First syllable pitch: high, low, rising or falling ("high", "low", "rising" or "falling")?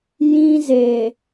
high